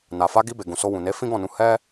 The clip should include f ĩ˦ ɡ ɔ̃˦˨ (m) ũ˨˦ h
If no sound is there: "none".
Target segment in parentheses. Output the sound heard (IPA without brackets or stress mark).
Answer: n